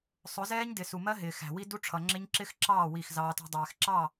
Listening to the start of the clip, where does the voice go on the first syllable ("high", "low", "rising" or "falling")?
rising